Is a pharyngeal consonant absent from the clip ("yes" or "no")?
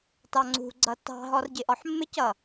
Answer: no